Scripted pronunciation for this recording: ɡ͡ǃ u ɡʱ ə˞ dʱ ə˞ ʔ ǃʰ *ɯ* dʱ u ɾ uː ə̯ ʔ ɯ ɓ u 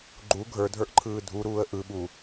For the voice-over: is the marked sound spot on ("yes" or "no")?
no